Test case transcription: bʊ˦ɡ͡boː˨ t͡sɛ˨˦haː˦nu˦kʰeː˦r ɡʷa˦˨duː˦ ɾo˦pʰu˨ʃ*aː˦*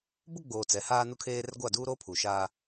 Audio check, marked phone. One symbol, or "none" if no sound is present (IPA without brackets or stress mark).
aː˦